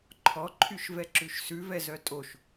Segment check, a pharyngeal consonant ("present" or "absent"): absent